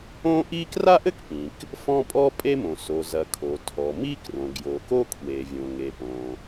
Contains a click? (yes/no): no